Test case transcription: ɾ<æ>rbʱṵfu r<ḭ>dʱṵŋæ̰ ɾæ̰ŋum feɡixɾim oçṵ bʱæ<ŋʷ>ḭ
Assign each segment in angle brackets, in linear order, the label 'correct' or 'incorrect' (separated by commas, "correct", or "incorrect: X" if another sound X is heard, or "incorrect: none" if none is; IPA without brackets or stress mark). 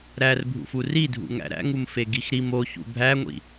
correct, incorrect: i, correct